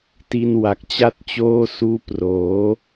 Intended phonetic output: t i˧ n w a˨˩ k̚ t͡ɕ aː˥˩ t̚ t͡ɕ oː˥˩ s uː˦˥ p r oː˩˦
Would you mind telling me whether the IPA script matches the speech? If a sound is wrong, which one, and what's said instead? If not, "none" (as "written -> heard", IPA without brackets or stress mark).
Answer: aː˥˩ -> a˥˩